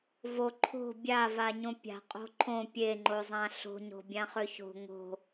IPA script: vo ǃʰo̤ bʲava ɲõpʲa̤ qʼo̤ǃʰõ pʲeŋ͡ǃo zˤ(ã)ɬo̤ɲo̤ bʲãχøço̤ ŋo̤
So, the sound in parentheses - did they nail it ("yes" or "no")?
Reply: yes